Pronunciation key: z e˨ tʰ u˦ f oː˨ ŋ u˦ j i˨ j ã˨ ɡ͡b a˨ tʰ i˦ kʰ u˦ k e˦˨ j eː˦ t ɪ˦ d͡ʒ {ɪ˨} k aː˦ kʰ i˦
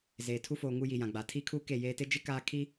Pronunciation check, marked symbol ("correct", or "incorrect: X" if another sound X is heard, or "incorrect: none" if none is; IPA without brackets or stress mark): incorrect: ɪ˦